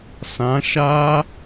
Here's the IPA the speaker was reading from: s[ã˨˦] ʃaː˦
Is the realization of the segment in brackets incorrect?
no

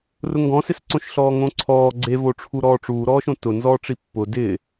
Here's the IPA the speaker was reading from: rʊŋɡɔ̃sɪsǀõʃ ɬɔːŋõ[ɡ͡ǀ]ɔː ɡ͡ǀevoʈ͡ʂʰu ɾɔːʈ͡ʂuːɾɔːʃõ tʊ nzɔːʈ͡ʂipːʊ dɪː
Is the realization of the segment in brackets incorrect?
yes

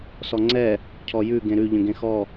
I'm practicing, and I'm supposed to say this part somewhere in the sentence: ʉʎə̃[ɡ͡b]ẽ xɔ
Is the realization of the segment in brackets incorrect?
yes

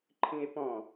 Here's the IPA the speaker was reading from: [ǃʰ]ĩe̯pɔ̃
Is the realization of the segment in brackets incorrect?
no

